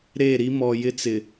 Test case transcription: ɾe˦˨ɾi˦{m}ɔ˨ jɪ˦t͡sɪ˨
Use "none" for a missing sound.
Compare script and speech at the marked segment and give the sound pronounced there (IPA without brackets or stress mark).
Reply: m